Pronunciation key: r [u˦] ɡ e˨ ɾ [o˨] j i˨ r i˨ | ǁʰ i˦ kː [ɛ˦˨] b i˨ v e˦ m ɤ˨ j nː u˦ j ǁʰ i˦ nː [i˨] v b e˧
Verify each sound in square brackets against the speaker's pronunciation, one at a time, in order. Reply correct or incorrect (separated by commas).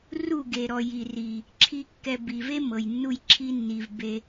incorrect, incorrect, incorrect, correct